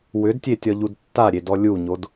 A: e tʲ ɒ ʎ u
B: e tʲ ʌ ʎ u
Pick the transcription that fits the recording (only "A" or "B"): A